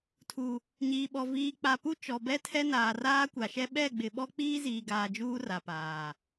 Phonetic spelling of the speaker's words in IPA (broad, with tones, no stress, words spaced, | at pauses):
tʰu˨ | ɲiː˨ɓɔ˨ viː˨k͡pa˨ pu˦ t͡ʃɔ˨bɛ˦tʰɛ˦ naː˨raː˦kʷa˨ʃɛ˦ ɓɛ˦˨ɡ͡bɪ˨ ɓɔ˦k͡piː˦ziː˨ɡaː˨ d͡ʒuː˦ra˨paː˨